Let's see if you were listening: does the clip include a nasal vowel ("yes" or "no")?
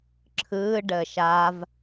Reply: no